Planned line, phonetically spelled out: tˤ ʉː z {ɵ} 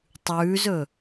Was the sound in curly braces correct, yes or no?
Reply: yes